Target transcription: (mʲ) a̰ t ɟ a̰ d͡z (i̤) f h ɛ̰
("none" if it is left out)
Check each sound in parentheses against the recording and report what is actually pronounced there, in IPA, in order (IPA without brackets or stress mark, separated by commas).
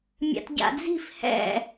mʲ, i̤